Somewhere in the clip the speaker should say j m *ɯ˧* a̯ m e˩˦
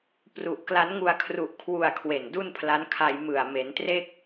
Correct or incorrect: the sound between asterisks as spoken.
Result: incorrect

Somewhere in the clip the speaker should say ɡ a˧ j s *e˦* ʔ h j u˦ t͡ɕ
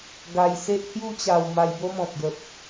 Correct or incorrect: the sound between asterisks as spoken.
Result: correct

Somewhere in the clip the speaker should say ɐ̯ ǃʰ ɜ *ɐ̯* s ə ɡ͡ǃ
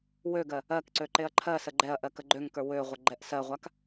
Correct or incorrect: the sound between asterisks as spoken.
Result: incorrect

